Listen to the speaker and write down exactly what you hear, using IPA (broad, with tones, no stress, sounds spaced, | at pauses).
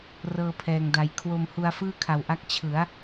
r ɤː˧ pʰ ɛː˨˩ ŋ d a˨˩ j kʰ w o˧ m h u˧ a̯ f ɯː˥˩ kʰ a˨˩ w ʔ a˦˥ k̚ t͡ɕʰ ɯ˩˦ a̯